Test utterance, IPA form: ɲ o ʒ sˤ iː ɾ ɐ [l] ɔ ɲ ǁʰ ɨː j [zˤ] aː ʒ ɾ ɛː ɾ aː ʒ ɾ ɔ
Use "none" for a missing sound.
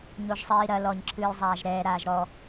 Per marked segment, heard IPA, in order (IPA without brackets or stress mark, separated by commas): l, zˤ